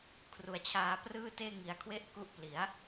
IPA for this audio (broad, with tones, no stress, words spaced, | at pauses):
kʰru˩˦a̯t͡ɕʰaː˧prɯː˥˩teː˥˩ ŋi˨˩a̯kʰwe˥˩ʔku˦˥ʔ pli˩˦a̯